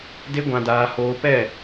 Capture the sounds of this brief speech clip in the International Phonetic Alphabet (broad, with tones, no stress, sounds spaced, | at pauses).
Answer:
d e˦ ɡʷ ã˧ d aː˧ h oː˧ p ɛ˦˨